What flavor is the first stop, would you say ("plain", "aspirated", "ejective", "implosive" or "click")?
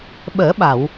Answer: implosive